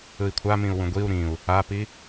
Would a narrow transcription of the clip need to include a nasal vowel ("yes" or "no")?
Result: yes